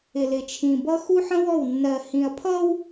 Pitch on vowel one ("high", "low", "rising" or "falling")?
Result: low